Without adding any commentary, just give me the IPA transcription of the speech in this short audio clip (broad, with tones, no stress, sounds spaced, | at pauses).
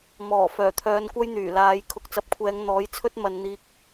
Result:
m ɔː˨˩ f œː˨˩ t̪ʰ œː˨˧ n kʷ ɐ˥ j n̪ yː˨˩ l aː˨˧ j kʰ ʊ˨ k̚ t͡s ɐ˧ p̚ kʷʰ ɛː˨˧ ŋ n̪ ɔː˨˥ j t͡sʰ ɵ˥ t̚ m ɐ˨˧ n n̪ iː˧ k̚